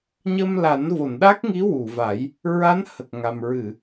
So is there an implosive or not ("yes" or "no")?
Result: yes